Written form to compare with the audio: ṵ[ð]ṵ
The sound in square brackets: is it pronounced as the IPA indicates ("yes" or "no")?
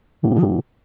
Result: yes